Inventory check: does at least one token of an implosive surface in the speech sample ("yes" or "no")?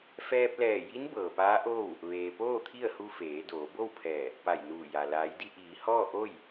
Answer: no